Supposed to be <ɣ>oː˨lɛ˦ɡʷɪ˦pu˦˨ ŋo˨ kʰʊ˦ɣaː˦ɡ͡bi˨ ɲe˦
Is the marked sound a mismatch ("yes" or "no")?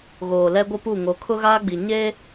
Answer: no